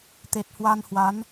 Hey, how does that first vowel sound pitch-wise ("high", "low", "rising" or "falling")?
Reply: low